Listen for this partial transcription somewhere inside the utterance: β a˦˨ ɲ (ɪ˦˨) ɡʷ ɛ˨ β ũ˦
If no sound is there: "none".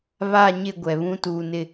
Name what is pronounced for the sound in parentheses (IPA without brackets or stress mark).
ɪ˦˨